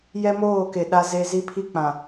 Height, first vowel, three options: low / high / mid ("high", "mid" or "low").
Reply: mid